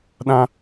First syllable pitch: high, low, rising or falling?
high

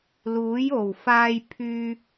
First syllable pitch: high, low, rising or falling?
rising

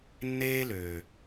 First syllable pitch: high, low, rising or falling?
high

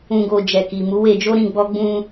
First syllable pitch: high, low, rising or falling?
low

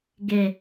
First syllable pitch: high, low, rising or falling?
low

